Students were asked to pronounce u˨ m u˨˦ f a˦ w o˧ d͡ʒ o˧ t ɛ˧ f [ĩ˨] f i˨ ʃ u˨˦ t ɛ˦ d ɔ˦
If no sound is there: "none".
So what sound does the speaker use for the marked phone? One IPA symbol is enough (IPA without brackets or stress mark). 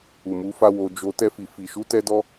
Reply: i˨